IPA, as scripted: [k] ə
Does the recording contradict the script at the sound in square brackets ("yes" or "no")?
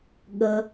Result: yes